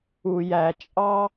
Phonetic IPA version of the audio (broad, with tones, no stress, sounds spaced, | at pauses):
u˩ j æ˩ t͡ʃʼ ɑ˥